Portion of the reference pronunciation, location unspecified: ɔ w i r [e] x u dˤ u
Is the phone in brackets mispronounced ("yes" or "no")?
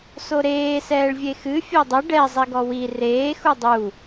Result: yes